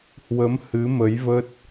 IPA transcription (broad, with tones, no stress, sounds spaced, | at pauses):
h w ə˨˦ m h ɨ˨˦ m ə˨˦ j v ə˦˥ t̚